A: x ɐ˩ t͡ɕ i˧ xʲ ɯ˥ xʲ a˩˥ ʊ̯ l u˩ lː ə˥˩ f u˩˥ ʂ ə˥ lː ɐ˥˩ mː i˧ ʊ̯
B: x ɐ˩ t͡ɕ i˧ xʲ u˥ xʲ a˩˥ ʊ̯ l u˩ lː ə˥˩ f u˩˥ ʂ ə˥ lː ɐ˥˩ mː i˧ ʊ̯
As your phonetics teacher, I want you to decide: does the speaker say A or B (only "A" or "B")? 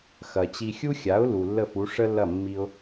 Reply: B